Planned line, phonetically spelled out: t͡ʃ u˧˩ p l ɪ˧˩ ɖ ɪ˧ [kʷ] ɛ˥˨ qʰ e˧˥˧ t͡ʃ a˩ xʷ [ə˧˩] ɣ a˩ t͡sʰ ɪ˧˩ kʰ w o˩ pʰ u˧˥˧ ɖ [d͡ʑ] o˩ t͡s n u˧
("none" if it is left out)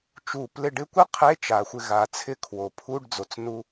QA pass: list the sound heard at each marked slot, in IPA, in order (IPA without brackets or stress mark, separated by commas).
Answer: kʷ, ɪ˧˩, d͡z